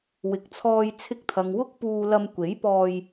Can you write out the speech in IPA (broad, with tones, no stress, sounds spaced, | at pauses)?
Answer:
w ɪ˨ k̚ t͡sʰ ɔː˧ j t͡sʰ ɪ˧ k̚ t̪ʰ ɐ˨ ŋ w ʊ˥ k̚ p uː˧ l ɐ˧ m kʷ e˨˥ j p ɔː˧ j